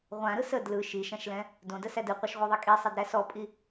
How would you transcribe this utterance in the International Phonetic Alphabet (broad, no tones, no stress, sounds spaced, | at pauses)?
ʁʷ ã ɾ ɯ s ə d l ɯ ʃ i ʃ ã ʃ l ɛ̃ | d õ d ə s æ d ɯ qʷ a ʃ ʁʷ ɛ ðˤ i kʼ i sˤ ɛ d ɾ æ s ɔ pʼ i